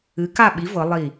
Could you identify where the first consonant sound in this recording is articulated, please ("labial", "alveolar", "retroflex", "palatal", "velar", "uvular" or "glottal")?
velar